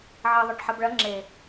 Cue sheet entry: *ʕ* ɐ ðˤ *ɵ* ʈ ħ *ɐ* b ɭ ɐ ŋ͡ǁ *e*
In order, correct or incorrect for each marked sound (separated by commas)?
correct, incorrect, correct, correct